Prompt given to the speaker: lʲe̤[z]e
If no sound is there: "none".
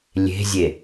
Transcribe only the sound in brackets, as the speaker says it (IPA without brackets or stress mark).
zʲ